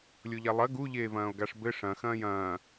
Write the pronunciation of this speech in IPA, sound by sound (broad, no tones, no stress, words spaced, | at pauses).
lʲoʎalˠɐ ɡu ʎeːvɐ̃ːo̯ɡaʂbɘ ʂɐ̃ xɐ̃ːjɐ̃ː